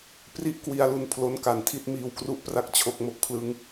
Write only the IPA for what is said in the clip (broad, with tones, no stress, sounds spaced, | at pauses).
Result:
p r i˦˥ ʔ k w i˧ a̯ l u˧ n pʰ l o˦˥ n k a˨˩ n tʰ i˥˩ t̚ m iː˧ w k r u˦˥ ʔ p r a˦˥ k̚ t͡ɕʰ o˦˥ k̚ m o˦˥ k̚ pʰ l ɯ˦˥ ŋ